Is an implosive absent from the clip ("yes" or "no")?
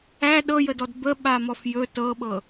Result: no